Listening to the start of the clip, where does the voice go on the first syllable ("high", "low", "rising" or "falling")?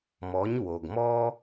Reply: rising